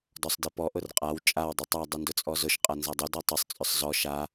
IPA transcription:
d ɔ sˤ d i p ɔ ʔ ʊ r qʼ a w t͡ʃʼ a w dˤ i tˤ a dˤ ʏ n d ʊ t͡sʼ ɔ z ʊ ʃ qʼ a n z a dˤ ʊ d ɔ tˤ ʊ sˤ t͡sʼ ʏ sˤ z ɔ ʃ a

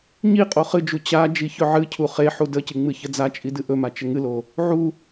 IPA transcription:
ɲ i qʼ o χ ɨ d͡ʒ u t͡ɕ a d͡ʒ i ç ɵ ʕ ɨ cʰ u χ e ħ u d ə c ɨ ŋ͡m ɨ ç ə d͡z a t͡ʃʼ i d ɨ ʔ ɵ m a t͡ʃ ə ŋ ɨ l o | ʕ u

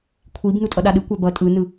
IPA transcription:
kʷʰ i b n u tʼ ʌ ɗ a ɗ ɯ kʷ a b ʌ tʼ ɯ n ɯ

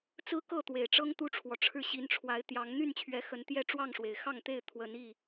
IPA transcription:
t͡s ɹ̩˦ k ɤ˥˨ t̪ w e˨˩ ɪ̯ ʈ͡ʂ ɤ˦ ŋ t̪ u˦ ʈ͡ʂʰ w ɔ˨ ʈ͡ʂʰ ɻ̩˥˨ ɕ i˨˦ n ʈ͡ʂʰ w a˨˦ ɪ̯ t̪ j ɑ˨˦ ŋ n̪ y˥˨ n t͡ɕʰ ɥ ɛ˨˦ x ə˨˦ n t̪ j ɛ˥˨ ʈ͡ʂ w ɑ˥˨ ŋ ʂ w e˩ ɪ̯ x ɑ˥˨ ŋ t̪ e˥˨ ɪ̯ t̪ʰ w ə˨˦ n i˥˨

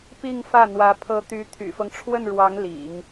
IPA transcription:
p i˥˧ ŋ f ä˥˩ n̪ w ä˧˥ pʰ ɤ˧˥ t̪ y˧˥ t̪ʰ y̰˨˩ f ɤ˦ ŋ ʈ͡ʂʰ w ə˥˩ n ɻ w ɑ˧˥ ŋ l ḭ˨˩˦ ŋ

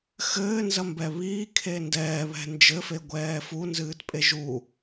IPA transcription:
x ɘː n z ɐ m b ɛ β iː kʰ e n d ɛː β ɛ̤ n d͡ʒ ɘ f e ɡʷ ɛː f u n z ɨː t pʼ e ʒ u

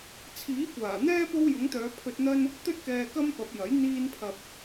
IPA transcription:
t͡sʰ iː˨˥ kʷ aː˨˩ n̪ ɛː˥ p o˥ w j ʊ˨˥ ŋ t̪ œː˨˧ pʰ ɵ˧ t̚ n̪ ɐ˥ n | t̪ ɵ˥ t̚ k ɛː˧ k ɐ˥ m p ɐ˨˥ p̚ j ɐ˨˥ j n̪ iː˧ n pʰ ɐ˨ p̚

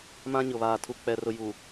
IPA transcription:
m ã˦ ɲ ʊ˨ β aː˨ tʰ u˨ k͡p ɛ˨ r ʊ˨ j u˨

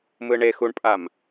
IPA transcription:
m ɯ ɳ e x u ɳ pʼ a m

